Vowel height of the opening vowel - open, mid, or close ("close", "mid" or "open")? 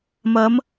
open